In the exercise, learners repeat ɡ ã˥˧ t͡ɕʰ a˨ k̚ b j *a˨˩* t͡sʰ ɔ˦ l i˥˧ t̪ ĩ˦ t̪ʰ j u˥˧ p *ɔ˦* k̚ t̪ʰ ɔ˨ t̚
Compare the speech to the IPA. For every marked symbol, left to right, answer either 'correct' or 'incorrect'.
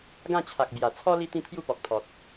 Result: correct, incorrect: ɔ˨

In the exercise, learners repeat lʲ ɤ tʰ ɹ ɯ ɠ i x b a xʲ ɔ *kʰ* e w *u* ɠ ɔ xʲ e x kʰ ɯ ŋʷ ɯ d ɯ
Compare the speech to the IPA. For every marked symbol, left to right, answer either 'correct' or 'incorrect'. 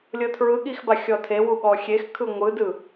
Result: incorrect: tʰ, correct

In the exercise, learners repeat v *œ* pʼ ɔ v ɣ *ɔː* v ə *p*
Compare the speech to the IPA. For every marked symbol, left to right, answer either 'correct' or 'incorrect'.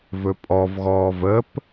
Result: incorrect: ɵ, correct, correct

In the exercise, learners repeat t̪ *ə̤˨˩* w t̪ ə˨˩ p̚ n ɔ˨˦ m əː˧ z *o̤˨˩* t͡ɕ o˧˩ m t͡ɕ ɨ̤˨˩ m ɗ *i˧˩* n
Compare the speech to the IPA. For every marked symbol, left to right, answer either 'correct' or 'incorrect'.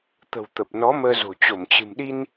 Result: correct, correct, incorrect: i˧

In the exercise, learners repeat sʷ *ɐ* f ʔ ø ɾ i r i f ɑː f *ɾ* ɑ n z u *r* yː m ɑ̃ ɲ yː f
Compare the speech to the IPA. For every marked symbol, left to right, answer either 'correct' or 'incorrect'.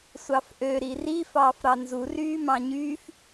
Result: incorrect: ɑ, correct, correct

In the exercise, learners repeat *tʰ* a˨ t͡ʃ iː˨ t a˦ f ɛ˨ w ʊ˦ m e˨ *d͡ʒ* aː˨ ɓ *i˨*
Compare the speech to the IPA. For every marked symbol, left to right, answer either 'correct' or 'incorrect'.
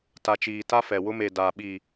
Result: incorrect: t, incorrect: d, correct

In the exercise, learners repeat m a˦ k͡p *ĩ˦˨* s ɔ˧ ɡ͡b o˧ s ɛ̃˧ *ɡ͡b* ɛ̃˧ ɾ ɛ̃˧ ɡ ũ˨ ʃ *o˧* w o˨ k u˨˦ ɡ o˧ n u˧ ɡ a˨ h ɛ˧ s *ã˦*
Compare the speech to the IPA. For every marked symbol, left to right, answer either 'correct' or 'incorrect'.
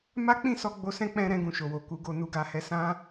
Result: correct, incorrect: k͡p, incorrect: o˨, correct

